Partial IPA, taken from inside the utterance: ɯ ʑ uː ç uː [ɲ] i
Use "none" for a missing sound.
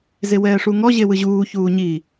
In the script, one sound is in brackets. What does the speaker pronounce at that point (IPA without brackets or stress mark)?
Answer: ɲ